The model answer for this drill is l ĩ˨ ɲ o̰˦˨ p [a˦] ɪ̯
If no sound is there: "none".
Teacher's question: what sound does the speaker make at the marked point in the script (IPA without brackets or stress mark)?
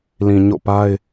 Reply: a˦